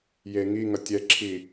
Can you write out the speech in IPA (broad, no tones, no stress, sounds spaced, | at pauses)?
j e ŋ i ŋ ʌ tʲ ɛ ǁʰ i